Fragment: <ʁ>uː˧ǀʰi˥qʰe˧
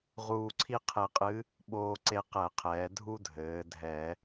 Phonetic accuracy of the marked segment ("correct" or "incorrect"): correct